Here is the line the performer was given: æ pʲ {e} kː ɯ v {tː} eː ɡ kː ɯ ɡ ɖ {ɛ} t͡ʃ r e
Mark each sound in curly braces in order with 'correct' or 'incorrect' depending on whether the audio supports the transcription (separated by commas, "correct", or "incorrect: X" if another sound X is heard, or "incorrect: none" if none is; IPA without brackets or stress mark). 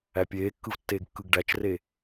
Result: incorrect: eː, correct, incorrect: æ